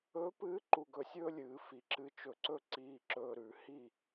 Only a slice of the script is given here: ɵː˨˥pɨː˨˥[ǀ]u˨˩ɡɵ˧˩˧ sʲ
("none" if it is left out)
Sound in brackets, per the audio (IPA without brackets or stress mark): ǃ